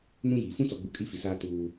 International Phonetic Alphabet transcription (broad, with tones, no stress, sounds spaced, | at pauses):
n ũ˦ j iː˨ f ũ˦ t͡s ɔ˨ ɡ͡b u˨ kʼ i˦ f i˨ s aː˦ t uː˦